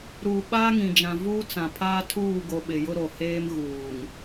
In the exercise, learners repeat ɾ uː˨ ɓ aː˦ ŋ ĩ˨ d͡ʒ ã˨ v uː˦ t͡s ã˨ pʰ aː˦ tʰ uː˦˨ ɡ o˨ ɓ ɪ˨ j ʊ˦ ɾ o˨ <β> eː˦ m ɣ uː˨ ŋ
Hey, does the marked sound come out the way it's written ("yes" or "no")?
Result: no